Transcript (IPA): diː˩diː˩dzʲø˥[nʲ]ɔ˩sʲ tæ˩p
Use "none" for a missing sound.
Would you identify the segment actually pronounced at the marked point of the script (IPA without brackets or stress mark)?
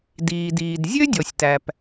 dʲ